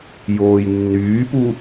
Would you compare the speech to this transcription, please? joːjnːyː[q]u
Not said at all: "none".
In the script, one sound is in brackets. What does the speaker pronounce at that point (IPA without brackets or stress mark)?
p